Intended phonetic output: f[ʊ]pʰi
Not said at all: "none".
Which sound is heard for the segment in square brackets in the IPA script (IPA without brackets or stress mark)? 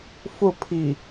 ʊ